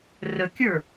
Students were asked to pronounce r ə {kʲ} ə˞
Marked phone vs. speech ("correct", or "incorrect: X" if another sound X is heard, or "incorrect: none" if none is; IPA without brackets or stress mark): correct